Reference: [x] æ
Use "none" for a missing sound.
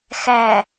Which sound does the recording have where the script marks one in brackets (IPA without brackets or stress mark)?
x